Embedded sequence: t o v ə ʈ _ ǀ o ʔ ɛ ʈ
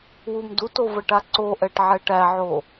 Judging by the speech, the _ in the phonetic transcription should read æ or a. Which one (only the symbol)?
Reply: a